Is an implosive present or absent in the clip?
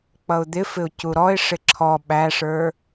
present